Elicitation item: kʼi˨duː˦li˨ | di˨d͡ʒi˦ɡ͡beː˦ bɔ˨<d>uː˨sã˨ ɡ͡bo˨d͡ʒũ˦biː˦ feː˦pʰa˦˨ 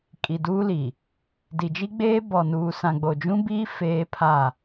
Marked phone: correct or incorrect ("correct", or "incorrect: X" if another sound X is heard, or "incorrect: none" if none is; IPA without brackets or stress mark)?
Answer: incorrect: n